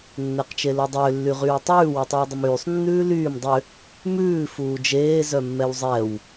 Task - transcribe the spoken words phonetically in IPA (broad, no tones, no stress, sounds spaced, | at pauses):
nː ɛ q t͡ʃ e l o dˤ ʏː lː y ʁ yː tˤ ʉː w ʉ tˤ ʉː dˤ ʏ m yː sˤ nː ʉː l yː m dˤ ʏ | m ʉː f uː d͡ʒ eː z œ mː ɛ w zˤ ɛ w